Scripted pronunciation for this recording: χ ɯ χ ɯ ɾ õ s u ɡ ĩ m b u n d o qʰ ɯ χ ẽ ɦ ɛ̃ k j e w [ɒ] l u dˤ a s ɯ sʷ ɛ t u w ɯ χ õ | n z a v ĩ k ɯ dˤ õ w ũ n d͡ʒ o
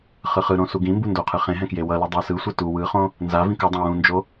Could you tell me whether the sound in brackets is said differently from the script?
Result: yes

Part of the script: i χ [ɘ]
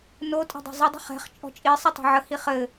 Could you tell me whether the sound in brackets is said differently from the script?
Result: no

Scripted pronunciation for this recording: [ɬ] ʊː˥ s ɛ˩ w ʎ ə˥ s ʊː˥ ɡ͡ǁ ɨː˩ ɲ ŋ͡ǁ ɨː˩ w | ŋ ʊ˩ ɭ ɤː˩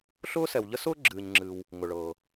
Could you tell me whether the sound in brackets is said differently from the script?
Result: no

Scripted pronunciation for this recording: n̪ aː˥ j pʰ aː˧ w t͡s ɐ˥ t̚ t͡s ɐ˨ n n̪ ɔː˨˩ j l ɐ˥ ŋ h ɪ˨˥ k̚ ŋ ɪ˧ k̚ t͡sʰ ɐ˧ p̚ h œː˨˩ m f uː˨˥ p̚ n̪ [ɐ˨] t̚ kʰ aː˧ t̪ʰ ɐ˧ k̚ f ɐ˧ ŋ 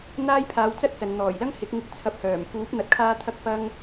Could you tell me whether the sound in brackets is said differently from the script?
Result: no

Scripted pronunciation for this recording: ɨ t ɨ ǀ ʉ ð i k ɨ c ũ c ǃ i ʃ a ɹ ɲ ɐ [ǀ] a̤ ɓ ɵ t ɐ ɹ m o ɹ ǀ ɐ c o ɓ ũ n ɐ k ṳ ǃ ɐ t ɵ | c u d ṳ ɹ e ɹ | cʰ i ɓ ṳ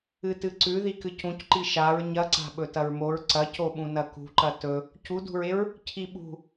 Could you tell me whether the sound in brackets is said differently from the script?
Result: no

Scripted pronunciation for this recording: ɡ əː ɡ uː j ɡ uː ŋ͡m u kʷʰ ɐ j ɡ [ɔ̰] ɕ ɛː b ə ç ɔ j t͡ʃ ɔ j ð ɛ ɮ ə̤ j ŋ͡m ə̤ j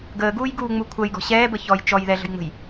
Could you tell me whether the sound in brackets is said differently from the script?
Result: yes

